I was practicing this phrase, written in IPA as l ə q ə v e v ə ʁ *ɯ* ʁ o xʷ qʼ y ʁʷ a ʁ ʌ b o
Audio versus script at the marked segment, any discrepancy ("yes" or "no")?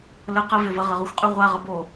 yes